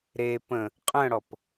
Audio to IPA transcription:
ɾe pə̃ | qʼə̃ɽɔp

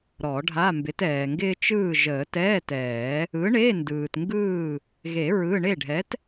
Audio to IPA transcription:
ɾɔ˨˩˦ɖʱa˧˥˧ mbɪ˨˥tɛː˨ŋɡɪː˥ t͡ʃɯː˥˨ʒəː˨˩˦ tɛː˧˥˧tɛː˨˩˦ | ɯ˨˥ɳe˧˥˧ ndɯː˨tŋɡɯː˥˨ | ɣe˨˩˦ ɹɯ˧˥˧ ɳe˥˨ɖʱɛ˨˥t

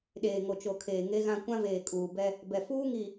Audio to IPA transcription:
ɗeː˨ŋo˨t͡ʃo˨ kʰeː˨ŋe˦ɣã˦ kʷã˦veː˨ kʼuː˨bɛ˦ | bɛ˨ fuː˦ŋi˨

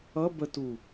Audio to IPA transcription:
ʌ bətu

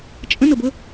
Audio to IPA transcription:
t͡ʃʼə̃nəbə

